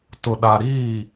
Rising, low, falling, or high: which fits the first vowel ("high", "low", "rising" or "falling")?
low